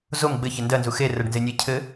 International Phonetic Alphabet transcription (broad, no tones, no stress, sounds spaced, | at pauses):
z o m ɡ͡b ɘ ç ɪ n d ɜ n z u x e r ɜ ɖ n z e nʲ e cʰ ɘ